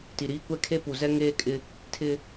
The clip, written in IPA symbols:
ti˨ ɾiː˦kʷɛ˦kʰe˦ pu˨zɛ˦ ŋeː˦kʼɪ˦ | tʰɪ˦

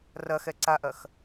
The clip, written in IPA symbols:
rɐxɛ ǀaʔɐx

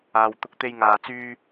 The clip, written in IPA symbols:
aː˨wt̪ʊ˧k̚t̪e˧j ŋaː˨t͡syː˧

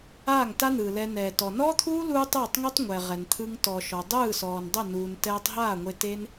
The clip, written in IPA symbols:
aː˦˨ŋta˦n̪ɯː˨lɛ˧ nɛː˨tɔ˨nɔː˦t̪ʰuː˦ luː˦tˤɯː˦˨tˤŋu˦tˤ ŋʷɛ˨ʁɛ˨nt̪ʰɯ˧ŋ tɔ˨ʃɔ˨ dˤɯː˦˨sɔː˨ndˤə˦˨ nuː˧n tɛː˧tˤɦaː˦˨ŋʷe˧ te˦n

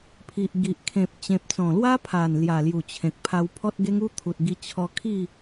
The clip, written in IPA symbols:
pʰi˨ʔɡi˨ʔ kʰẽ˨p̚ t͡ɕẽ˨p̚t͡sɔ̃˨˩lwa˦pʰa˨˩n lja˨˩lju˨˩t͡ɕʰẽ˨k̚pʰa˧w pʰɔ˦t̚ɡe˦ŋu˦t̪ʰu˨t̚ ɡi˧t͡ɕʰɔ˧ kʰi˥˧

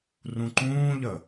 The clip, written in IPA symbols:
rũǃũːʎə

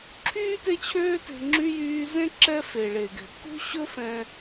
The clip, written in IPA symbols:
ǁʰyː˥te˦t͡ɕʰøː˦te̤˨ ŋ͡ǁy˥jyː˦ zẽ˥ǁɛ˦ fe˩ɭe˩ɡɛ̤˩ kṳ˥ɕɵ˥fɛ̃˨

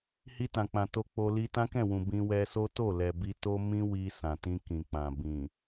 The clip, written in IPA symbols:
hi˧tã˨k͡pã˨ to˧ k͡po˧li˦ tã˦kɛ̃˦˨wũ˨ bĩ˧ wɛ˧so˦ to˦˨lɛ˨ bi˧to˦ mĩ˦wi˧ sã˨tĩ˧kĩ˨k͡pã˨ bĩ˨

